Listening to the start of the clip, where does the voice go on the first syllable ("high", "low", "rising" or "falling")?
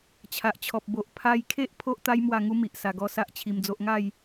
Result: low